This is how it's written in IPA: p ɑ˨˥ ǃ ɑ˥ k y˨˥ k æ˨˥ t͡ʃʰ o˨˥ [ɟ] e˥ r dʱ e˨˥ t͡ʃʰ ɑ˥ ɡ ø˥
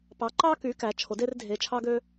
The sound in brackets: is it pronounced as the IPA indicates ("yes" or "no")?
no